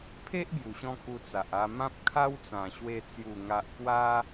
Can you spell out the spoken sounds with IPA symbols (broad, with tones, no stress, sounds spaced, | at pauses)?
pʰ e˦ ʔ b j u˨˩ ɕ ɔ̃˧ k u˧ t͡s a˨ ʔ a˧ m ã˦ p̚ kʰ a˦ w t͡s ã˨˩ ɕ w e˧ t͡s j u˨˩ ŋ a˨ ʔ k w a˧